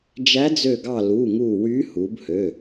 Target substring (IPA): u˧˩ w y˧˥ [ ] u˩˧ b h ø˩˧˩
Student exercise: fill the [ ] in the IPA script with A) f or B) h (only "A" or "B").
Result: B